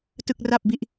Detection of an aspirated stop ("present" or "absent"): absent